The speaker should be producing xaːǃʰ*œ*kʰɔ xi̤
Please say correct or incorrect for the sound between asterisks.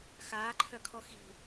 correct